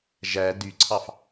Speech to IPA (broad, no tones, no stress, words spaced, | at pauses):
ʒæ dyǀʰɑf